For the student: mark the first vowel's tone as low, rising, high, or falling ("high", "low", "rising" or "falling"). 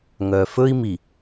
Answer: low